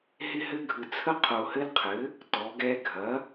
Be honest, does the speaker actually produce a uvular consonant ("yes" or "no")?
yes